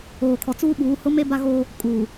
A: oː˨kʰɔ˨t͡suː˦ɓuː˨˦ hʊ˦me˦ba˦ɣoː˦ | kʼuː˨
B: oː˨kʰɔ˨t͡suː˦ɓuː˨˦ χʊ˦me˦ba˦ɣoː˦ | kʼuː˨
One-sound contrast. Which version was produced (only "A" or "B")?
A